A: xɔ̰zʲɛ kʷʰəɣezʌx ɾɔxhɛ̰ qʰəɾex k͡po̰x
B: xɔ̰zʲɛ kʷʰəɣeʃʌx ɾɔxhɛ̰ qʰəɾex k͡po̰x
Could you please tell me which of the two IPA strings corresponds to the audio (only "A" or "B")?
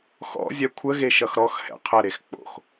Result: B